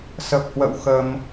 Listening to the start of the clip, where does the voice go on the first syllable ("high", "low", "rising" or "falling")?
low